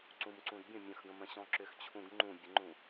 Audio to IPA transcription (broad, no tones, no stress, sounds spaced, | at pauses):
ǀ ũ m ǀ ũ d bʲ ə̃ mʲ ə̃ x ɡ ə̃ m ə̃ ɕ ɔ̃ ǁ ʏ x t͡ɕʰ ũ ɡ ŋ͡ǃ ũ bʲ ə ŋ͡ǃ ũ